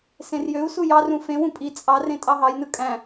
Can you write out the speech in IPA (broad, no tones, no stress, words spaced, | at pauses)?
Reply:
sẽrjøu̯su jɑrũ fẽwũ pʼi t͡sʼɑrẽ tʼɑɦɑjnɯ kʼæ̃